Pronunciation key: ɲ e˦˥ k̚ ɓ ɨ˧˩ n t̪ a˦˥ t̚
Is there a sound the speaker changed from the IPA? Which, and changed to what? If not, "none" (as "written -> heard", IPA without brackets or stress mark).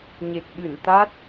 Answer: e˦˥ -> e˨˩